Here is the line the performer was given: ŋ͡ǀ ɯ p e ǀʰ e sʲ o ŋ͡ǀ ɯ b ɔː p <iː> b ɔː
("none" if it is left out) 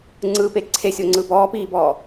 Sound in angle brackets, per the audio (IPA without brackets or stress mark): iː